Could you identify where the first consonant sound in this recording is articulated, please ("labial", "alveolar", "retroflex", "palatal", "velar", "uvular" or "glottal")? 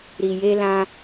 alveolar